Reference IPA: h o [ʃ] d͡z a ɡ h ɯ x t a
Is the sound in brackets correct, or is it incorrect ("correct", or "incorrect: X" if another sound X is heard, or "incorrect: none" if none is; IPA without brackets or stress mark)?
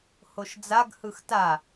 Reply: correct